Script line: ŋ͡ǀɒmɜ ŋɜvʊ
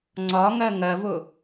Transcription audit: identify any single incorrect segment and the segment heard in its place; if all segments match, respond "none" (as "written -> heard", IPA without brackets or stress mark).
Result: m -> ŋ